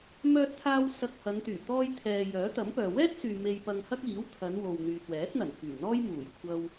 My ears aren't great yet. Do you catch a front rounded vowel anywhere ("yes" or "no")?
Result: yes